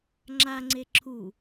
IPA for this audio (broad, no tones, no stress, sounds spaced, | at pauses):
ŋ͡ǁ a ŋ͡ǀ e ǁʰ u